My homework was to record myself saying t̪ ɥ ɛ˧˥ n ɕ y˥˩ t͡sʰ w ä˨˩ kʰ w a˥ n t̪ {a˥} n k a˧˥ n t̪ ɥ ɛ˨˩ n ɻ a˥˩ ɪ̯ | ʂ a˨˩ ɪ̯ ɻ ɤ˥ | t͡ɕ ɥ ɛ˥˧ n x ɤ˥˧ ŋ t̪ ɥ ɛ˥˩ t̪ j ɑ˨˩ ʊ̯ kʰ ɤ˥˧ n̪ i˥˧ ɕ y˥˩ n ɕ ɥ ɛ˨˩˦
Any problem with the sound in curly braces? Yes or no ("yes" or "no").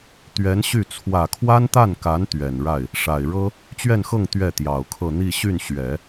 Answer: yes